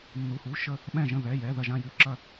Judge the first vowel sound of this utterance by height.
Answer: high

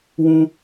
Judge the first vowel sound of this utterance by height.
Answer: high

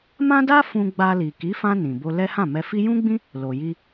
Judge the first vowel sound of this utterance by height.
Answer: low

